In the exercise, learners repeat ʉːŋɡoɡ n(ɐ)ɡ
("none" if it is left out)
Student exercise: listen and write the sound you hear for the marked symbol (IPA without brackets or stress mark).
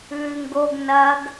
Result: ɐ